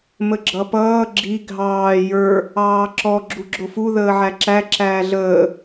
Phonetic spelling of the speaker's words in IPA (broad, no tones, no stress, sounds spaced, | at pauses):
m ə ɡ͡ǁ ʌ p ʌː ɡ͡ǁ i ɡʱ ɑː j ə˞ | ɑː ǁ ɔ ɡ͡ǁ u ɡ͡ǁ ʊ f u ð əː ʕ æ ǁ æ ǁ æː ɮ əː